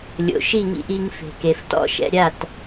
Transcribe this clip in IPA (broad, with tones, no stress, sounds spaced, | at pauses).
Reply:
lʲ o̰˩ ʃ i˥˩ ŋ ḭ˧ ʔ i˧ ŋ f e̤˩ k e˩ f t ɔ̰˧ ʃ ɛ̰˧ ɾʲ a˥˩ t